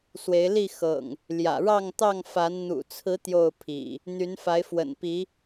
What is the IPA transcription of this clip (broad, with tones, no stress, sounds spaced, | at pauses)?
s w e˨˦ ɪ̯ l i˥˨ x ɤ̰˨˩ ŋ | l j ä̰˨˩ ɻ ɑ˥˨ ŋ t̪ ɑ˥˨ ŋ f a˨˦ n n̪ ṵ˨˩ t͡sʰ ɹ̩˨˦ t̪ j o˥˨ ʊ̯ pʰ ḭ˨˩ | n̪ y˨˦ n f a˨˦ ɪ̯ f w ə̰˨˩ n p i˨˦